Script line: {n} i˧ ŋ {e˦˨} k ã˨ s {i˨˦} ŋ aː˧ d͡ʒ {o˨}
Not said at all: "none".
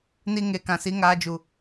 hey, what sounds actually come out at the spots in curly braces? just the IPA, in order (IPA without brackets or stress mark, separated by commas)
n, e˨, i˨˦, u˨